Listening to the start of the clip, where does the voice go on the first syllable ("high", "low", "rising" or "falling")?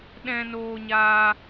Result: high